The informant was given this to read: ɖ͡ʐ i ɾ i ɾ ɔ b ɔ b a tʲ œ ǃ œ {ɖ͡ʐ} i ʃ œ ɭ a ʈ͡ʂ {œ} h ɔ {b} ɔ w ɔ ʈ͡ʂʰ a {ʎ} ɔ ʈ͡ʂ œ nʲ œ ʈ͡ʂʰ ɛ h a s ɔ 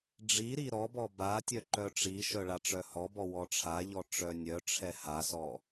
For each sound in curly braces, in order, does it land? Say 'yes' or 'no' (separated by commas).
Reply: no, yes, yes, yes